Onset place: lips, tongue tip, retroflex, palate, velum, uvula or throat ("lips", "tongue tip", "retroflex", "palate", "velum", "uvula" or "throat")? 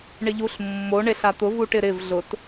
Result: retroflex